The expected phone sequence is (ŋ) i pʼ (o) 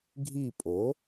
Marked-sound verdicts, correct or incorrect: incorrect: ɡʱ, correct

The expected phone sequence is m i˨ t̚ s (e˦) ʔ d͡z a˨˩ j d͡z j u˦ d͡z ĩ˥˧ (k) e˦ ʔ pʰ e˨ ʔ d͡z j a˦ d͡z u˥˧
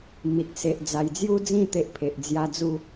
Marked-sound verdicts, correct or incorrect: incorrect: e˨, incorrect: t̪

